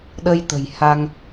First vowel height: mid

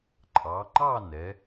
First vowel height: low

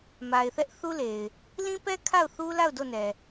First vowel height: low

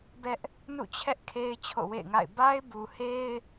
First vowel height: mid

